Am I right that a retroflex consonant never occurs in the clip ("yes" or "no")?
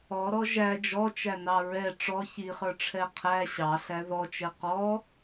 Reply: no